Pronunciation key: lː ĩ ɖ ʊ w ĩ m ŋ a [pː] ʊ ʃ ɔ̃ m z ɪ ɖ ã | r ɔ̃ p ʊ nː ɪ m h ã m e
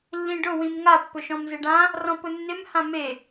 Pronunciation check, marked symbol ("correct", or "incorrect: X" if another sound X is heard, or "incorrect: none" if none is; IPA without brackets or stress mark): correct